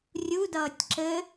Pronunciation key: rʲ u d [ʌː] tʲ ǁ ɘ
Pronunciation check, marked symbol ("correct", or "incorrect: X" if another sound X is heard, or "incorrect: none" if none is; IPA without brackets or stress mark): correct